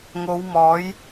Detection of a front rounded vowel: absent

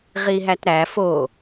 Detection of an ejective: absent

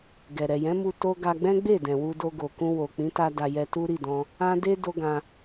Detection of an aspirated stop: absent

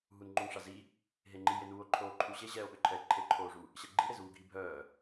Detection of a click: present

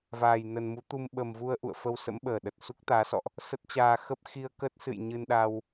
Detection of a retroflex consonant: absent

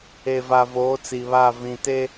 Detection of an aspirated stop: absent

